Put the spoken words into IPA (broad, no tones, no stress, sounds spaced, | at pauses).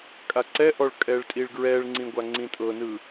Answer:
kʼ a ǀ ɛ ʔ ɔ ɭ kʼ ɛ ɭ tʼ i ɭ ɡ ɹ ɛ ɭ ŋ͡ǀ ĩ ɡʷ a ŋ͡ǀ ĩ tʼ ɤ n ɯ